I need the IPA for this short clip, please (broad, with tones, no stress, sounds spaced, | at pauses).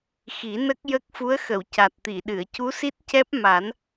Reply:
x i˨˩˦ n ə˦˥ k̚ j ə˦˥ k̚ f u˧˥ ə̯ x ə˨˩˨ w c a˨˩ t̚ t̪ i˨˩˨ ɗ ɨ˨˩˨ ə̯ c u˧˥ s i˦˥ t̚ c ɛ˦˥ p̚ m a˨˩˦ n